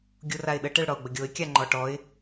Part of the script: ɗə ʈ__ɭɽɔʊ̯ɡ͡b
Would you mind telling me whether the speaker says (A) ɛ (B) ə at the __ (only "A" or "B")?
A